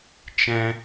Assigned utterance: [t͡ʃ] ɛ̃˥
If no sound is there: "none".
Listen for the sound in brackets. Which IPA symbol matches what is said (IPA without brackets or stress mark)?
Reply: t͡ʃ